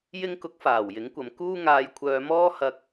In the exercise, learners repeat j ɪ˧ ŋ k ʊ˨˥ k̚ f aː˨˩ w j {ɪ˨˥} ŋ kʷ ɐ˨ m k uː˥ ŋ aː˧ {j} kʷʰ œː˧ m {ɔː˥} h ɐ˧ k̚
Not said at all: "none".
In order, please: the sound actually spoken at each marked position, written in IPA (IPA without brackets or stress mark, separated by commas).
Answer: ɪ˨˥, j, ɔː˥